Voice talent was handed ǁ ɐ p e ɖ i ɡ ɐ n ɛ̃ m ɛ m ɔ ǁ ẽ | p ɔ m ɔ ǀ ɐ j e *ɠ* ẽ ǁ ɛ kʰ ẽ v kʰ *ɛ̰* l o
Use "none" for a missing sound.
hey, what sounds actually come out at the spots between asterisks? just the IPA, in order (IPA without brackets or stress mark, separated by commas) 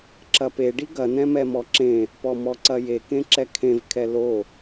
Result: k, ɛ